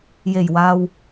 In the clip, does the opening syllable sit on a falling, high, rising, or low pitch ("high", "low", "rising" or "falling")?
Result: low